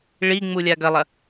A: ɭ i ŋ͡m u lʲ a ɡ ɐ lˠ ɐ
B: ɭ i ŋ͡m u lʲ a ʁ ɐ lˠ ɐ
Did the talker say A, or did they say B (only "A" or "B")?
A